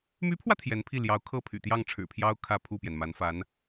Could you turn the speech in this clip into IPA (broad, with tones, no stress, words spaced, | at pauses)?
my˧˥pʰwä˧ t̪ʰjɛ˧˥npʰi˥˩ ljɑ˧˥ʊ̯kʰɤ˥˩pʰy̰˨˩ t̪jɑ˥˩ŋʈ͡ʂʰɻ̩˨˩pʰjɑ˥ʊ̯ kʰä˥˧pʰu˥˩pjɛ˩nma˧˥n fa˧˥n